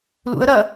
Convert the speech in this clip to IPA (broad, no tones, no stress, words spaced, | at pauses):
lṵə̯ ɾɐ